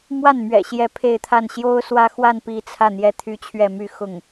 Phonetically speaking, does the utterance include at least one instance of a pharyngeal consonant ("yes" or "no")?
no